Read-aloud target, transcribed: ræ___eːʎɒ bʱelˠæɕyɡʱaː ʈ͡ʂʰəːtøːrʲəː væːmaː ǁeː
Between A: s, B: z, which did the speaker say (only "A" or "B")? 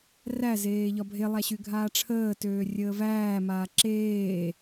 B